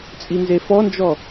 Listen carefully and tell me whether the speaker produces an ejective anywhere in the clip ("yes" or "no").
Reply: yes